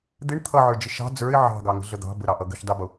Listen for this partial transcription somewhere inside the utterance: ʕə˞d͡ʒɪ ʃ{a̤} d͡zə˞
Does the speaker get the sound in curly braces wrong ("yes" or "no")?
yes